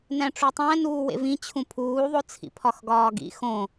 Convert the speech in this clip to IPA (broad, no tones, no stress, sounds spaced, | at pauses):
n æ̃ ʈ͡ʂ u tˤ æ̃ n uː w ḛ v ĩ t͡ɕʰ ũ pʰ uː ðˤ o t͡sʰ ḭ pʰ ɒ x ɡ ɒː ɡ ḭ x õ